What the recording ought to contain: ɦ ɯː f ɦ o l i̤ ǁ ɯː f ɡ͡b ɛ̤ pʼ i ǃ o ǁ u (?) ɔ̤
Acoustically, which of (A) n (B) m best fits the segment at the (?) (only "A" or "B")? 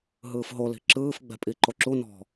A